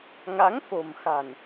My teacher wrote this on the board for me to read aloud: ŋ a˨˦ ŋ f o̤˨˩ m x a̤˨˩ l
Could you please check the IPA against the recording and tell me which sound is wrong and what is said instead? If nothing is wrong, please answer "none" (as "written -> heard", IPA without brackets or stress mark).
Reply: l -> n